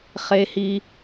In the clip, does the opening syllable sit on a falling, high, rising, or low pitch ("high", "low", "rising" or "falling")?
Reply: low